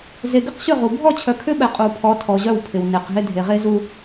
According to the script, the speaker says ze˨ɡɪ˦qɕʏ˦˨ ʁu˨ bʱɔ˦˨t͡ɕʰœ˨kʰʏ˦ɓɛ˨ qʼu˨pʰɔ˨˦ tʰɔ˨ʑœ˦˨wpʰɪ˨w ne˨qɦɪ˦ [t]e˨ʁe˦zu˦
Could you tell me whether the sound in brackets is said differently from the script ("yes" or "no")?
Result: yes